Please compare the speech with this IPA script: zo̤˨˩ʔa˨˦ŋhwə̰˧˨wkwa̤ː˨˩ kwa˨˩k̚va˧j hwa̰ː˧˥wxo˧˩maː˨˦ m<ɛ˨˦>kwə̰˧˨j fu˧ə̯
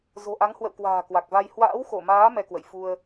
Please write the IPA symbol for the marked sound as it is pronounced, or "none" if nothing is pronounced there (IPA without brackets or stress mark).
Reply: ɛ˧